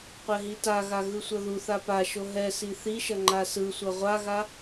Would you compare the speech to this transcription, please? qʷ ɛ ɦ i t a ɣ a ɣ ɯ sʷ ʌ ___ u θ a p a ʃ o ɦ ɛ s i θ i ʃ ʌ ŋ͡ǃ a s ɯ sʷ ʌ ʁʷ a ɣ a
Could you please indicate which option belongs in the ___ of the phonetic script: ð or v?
ð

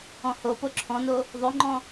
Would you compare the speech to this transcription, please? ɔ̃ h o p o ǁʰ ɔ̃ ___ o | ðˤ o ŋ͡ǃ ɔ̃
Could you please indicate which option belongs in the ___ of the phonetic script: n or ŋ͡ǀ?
n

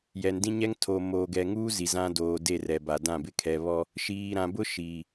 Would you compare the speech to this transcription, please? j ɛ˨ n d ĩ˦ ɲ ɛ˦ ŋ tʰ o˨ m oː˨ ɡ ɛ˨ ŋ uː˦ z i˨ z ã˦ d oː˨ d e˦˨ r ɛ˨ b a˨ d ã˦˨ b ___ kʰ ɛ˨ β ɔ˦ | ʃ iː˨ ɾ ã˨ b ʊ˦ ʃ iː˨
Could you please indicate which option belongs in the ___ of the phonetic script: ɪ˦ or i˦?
ɪ˦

